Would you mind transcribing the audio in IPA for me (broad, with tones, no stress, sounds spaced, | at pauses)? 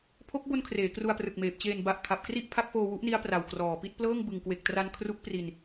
pʰ o˦˥ k̚ b o˧ n kʰ r eː˩˦ k r u˧ a̯ p r ɯ˨˩ k̚ m eː˨˩ p̚ t͡ɕ eː˨˩ n b a˨˩ ʔ kʰ a˨˩ p̚ k r i˥˩ ʔ pʰ a˦˥ k̚ f oː˧ w u˦˥ ʔ n i˦˥ a̯ p r a˨˩ w k r ɔː˨˩ p i˥˩ t̚ p l ɤː˥˩ ŋ b ɯ˨˩ ŋ k w e˨˩ k̚ t r a˧ n kʰ r u˦˥ k̚ p r i˧ n